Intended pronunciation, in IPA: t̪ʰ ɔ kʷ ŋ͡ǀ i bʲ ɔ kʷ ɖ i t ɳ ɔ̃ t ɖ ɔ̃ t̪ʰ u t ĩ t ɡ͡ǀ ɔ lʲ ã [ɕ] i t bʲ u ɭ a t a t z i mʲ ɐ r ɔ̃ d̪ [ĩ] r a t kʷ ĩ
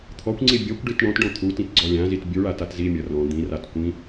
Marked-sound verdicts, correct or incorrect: incorrect, correct

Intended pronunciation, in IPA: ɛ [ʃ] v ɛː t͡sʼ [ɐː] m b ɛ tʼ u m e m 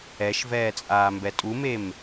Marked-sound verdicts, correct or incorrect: correct, incorrect

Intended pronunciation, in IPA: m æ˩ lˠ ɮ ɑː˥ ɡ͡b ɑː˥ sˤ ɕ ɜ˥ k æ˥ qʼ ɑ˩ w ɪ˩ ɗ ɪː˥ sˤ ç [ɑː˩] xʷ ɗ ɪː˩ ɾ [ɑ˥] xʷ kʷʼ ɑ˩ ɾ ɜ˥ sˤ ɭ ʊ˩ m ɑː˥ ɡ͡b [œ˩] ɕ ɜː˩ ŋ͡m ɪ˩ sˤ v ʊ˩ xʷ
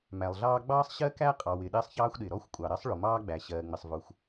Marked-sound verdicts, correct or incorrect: incorrect, incorrect, incorrect

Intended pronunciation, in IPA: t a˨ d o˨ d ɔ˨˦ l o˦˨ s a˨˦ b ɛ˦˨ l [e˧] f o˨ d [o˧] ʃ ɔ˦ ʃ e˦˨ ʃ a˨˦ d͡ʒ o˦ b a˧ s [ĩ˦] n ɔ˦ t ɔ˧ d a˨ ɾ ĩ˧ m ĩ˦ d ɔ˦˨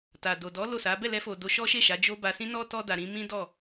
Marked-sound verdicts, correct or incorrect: incorrect, correct, correct

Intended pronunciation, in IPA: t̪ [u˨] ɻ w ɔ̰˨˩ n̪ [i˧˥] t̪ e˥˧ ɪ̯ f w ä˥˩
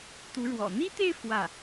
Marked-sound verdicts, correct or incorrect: incorrect, incorrect

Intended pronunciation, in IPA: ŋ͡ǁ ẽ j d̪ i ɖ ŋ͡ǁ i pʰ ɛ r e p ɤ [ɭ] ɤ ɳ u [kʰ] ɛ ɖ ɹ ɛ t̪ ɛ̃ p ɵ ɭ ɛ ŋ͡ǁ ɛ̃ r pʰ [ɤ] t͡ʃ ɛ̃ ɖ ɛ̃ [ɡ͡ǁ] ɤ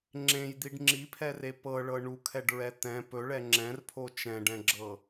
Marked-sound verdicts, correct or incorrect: correct, correct, incorrect, correct

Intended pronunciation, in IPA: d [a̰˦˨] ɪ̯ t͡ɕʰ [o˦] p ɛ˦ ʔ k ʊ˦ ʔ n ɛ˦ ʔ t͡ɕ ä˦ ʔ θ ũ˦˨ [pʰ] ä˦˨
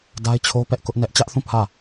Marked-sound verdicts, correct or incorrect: incorrect, correct, correct

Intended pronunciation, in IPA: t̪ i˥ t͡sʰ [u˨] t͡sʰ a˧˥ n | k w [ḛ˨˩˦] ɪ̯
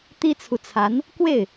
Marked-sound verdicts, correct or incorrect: correct, incorrect

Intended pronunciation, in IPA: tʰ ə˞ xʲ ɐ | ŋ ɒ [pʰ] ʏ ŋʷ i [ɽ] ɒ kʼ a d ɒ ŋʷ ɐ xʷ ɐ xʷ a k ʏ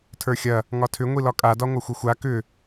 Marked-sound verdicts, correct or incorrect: incorrect, incorrect

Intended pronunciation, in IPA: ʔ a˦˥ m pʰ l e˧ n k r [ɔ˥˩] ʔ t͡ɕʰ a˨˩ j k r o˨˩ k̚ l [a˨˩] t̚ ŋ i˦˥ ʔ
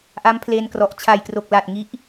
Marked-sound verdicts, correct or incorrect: incorrect, correct

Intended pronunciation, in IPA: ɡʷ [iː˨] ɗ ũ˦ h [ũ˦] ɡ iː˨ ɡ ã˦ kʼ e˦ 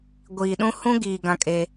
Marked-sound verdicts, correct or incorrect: correct, correct

